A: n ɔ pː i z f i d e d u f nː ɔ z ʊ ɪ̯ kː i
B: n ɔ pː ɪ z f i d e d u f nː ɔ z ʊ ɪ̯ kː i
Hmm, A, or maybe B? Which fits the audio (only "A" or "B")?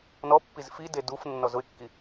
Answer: A